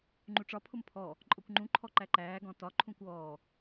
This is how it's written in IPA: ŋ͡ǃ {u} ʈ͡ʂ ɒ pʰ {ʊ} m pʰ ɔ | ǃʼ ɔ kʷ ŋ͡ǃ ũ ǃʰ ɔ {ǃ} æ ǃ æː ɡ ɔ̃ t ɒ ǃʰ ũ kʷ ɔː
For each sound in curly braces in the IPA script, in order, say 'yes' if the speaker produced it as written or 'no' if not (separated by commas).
yes, yes, yes